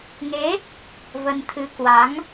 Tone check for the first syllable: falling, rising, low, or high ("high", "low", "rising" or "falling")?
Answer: rising